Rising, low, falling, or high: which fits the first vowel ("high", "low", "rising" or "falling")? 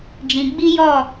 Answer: low